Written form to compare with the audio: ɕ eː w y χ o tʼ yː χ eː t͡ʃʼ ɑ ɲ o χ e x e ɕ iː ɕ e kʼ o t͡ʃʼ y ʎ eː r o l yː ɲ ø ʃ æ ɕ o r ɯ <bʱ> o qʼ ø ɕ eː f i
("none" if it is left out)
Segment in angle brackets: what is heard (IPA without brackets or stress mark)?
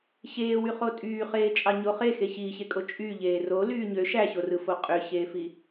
f